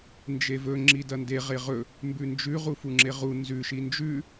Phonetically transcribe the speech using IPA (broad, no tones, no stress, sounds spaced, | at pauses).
n d͡ʒ e v ɵ ŋ͡ǁ i d ɐ n d e ʁ e ʁ ɵ | m b ʉ n d͡ʒ ʉ ʁ u f u ŋ͡ǁ e ʁ u n z ʉ ʃ i n d͡ʒ ʉ